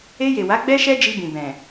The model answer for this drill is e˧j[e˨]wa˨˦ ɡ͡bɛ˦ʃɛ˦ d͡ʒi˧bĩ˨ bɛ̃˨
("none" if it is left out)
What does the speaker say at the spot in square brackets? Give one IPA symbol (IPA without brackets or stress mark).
e˨